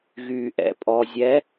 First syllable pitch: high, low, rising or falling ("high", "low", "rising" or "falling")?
low